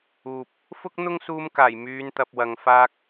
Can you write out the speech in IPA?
uː˨ p̚ | f ʊ˥ k̚ n̪ ʊ˥ ŋ s uː˧ m k aː˨˩ j m yː˨˧ n t̪ ɐ˨ p̚ w ɐ˨ ŋ f aː˧ k̚

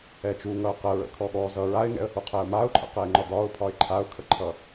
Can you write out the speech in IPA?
ɛ t͡ʃ u ŋ ʌ ʊ̯ q ə ɹ ə̰ kʰ ɔ ɠ ɔ z ʌ ɹ a ɪ̯ ŋ ɛ̰ ə̯ h u qʰ ɛ ʊ̯ m a ʊ̯ ǃʰ ə̰ q ɛ ɪ̯ ŋ͡ǃ ɒ d ɒ ʊ̯ pʰ ɒ ɪ̯ ǃʰ a ʊ̯ kʰ ə ǃʰ ʌ

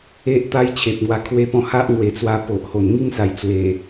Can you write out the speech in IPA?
e˦ ʔ t̪ a˦ j t͡ɕʰ e˨ p̚ ŋ w a˧ kʰ w e˦ p ɔ̃˦ h a˦ ʔ ŋ w e˨˩ t͡s w a˧ p o˨ ʔ h o˨˩ n ŋ i˥˧ ŋ s a˨˩ j t͡s w e˨˩

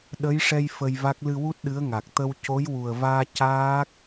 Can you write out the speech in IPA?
ɗ ə˧˥ j ʂ ɛ˧ j f ə˧ j v a˦˥ k̚ l ɨ˧ w u˦˥ t̚ ɗ ɨ˧˥ ə̯ ŋ a˨˩ k̚ t̪ ə˧ w c o˧˥ j w u˨˩ ə̯ v aː˧ c aː˦˥ k̚

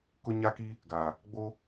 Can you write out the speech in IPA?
k ʊ˦ ɲ a˦ k i˦ | ɡ aː˨ | ɡ͡b o˦

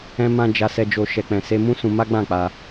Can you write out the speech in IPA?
ɛ̃˧ m ã˧ d͡ʒ a˧ s ɛ˧ d͡ʒ o˧ ʃ ɛ˨ k͡p ɛ̃˨ s e˧ m ũ˦ s ũ˧ m a˦ ɡ͡b ã˦˨ k͡p a˧

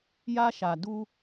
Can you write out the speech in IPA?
j a˦ ʃ a˨ d u˦

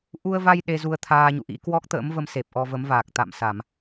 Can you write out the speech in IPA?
ʔ u˧ ə̯ v a˧ j ɗ e˧ z u˧ ə̯ t̪ʰ aː˧ ɲ ṵ˧˨ ʔ ḭ˧˥ k w ɔ˦˥ k̚ t̪ ə̰ː˧˥ m v ə˧ m s e˨˩ p̚ ʔ ɔ˧ v ə˨˦ m v aː˨˩ k̚ t̪ a̰˧˨ m s a˧˩˨ m

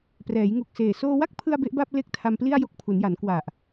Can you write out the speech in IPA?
p r ɛː˩˦ j ŋ u˨˩ k̚ s eː˨˩ s oː˧ w a˥˩ k̚ pʰ ɯ˧ a̯ b e˦˥ ʔ b a˥˩ p̚ l e˥˩ k̚ tʰ a˧ m p l i˥˩ a̯ j o˦˥ k̚ pʰ u˩˦ n j a˩˦ n k w a˨˩ ʔ

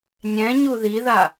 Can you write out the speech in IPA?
nʲ ɛ̃ ɲ u ð i ð a

